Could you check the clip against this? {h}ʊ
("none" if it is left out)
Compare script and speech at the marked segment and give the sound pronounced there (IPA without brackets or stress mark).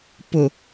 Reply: p